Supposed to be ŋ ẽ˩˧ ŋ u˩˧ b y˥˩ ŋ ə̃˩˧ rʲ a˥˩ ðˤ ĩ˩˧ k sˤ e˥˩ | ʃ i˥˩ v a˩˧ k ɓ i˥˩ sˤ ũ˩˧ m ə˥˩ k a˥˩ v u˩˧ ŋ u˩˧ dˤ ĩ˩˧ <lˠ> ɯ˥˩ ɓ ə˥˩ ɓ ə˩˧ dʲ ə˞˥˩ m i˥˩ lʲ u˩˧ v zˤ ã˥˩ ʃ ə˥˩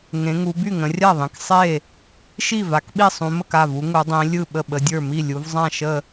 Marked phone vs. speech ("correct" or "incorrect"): incorrect